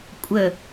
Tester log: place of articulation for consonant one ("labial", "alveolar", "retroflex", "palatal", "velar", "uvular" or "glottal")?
velar